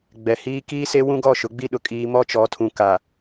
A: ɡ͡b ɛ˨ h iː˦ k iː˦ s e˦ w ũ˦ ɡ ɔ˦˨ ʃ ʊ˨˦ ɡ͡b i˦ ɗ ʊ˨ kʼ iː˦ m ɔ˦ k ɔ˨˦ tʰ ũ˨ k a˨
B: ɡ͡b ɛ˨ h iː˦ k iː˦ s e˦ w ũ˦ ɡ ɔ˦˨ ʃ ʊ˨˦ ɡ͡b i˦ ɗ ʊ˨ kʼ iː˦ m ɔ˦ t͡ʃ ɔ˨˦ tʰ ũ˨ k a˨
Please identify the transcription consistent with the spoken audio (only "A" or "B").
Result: B